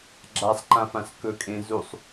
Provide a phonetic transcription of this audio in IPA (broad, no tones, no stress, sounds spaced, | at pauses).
ɡ͡ǁ a sˤ ǃ ã f ã s k ɵ kʼ ẽ z u sˤ